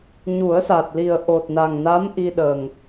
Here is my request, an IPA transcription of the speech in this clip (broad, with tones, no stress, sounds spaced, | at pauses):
ɲ u˨˩˦ ə̯ s a˨˩ t̚ l i˨˩ ə̯ ʔ o˨˩ t̚ n a˨˩ ŋ n a˧˥ m ʔ i˧ ɗ ə˨˩ ŋ